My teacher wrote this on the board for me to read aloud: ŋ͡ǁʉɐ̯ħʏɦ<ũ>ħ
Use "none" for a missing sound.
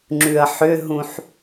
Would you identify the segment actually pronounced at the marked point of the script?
ũ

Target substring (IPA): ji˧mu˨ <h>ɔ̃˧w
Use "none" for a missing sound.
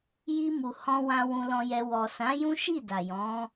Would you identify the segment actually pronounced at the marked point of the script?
h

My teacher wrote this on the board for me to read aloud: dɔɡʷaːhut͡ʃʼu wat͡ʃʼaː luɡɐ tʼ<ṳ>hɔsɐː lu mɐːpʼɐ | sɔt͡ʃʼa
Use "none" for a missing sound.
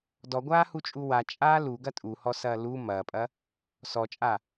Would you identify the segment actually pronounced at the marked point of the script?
u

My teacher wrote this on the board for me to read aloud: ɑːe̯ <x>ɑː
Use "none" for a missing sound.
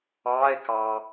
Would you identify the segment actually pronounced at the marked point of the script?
k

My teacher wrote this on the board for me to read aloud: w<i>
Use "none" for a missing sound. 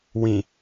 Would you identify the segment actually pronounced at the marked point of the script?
ĩ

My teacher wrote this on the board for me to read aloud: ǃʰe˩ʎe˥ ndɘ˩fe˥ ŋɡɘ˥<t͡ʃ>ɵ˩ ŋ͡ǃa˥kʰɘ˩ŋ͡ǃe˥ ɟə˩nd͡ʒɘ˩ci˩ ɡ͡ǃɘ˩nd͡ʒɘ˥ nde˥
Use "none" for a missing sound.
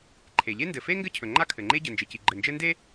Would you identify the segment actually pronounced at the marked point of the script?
cʰ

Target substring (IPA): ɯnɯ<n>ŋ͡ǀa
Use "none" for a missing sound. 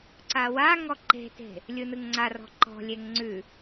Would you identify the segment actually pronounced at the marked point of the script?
ŋ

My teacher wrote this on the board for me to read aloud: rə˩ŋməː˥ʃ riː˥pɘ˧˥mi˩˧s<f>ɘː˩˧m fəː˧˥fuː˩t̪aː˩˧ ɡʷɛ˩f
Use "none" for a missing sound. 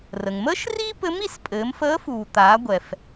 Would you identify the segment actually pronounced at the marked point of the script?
pʼ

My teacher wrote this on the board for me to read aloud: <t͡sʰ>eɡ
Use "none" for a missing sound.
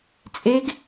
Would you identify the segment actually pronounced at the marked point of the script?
t͡sʼ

